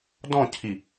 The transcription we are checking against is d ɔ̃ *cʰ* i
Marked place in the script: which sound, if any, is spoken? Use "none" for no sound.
cʰ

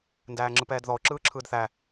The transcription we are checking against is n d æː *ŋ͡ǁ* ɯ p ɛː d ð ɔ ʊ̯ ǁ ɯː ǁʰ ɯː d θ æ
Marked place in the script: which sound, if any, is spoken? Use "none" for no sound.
ŋ͡ǁ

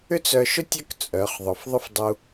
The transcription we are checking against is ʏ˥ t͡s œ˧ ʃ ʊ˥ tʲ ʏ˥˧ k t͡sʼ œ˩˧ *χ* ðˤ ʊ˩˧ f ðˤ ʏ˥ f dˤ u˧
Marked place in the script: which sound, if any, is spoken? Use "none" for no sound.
χ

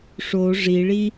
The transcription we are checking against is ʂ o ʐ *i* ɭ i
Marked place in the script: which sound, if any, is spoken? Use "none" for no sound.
i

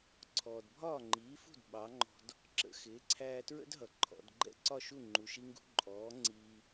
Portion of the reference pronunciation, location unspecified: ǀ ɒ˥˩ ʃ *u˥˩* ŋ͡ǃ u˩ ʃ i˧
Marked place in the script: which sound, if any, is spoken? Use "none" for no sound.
u˥˩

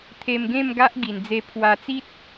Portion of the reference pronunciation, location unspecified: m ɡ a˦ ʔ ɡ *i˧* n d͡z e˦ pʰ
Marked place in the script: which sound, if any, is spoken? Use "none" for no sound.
i˧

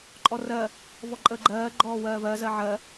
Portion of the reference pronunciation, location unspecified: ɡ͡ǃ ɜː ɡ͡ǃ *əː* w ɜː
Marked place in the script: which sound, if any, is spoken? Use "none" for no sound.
ɔː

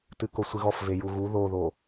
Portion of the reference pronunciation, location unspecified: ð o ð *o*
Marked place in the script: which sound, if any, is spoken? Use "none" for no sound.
o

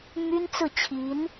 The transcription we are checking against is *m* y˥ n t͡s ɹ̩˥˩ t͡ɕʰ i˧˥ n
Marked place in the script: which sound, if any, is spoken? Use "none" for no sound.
m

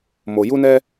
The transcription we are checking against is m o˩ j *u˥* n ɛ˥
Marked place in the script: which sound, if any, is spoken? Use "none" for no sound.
u˥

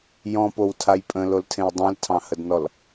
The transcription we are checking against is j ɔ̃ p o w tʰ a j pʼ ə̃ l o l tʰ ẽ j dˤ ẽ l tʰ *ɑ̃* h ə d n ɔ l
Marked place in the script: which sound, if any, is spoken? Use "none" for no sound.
ɑ̃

